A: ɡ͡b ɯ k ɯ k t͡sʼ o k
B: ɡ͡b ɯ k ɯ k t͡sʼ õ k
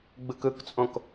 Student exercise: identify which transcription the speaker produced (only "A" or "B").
B